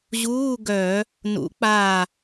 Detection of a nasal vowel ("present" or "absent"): absent